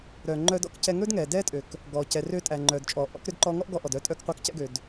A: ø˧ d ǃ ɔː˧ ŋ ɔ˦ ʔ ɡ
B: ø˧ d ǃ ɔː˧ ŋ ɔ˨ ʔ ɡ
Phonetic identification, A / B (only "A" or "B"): A